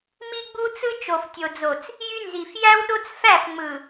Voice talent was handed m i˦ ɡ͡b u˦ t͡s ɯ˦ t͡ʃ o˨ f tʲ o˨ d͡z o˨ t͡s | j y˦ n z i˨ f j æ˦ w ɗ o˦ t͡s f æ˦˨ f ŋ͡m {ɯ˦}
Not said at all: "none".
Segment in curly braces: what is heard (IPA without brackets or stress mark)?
ɯ˨